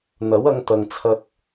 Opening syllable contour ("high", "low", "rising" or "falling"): rising